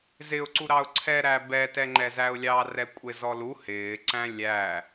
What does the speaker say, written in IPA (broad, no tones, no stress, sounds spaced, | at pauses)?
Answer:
z ɪ ʊ̯ ǀ u ɾ ɑ ʊ̯ ǀʰ ɛ ɾ æ b ɛ t ɛ ŋ͡ǃ ɛ z æ ʊ̯ lʲ ɑ r ɛ kʷʼ ɪ z ɔ l u h ɪː ǀ æ̃ lʲ æ